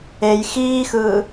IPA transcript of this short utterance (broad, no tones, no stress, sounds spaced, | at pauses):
e j x iː x ɯː